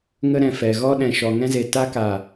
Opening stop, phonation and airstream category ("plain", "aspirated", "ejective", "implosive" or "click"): implosive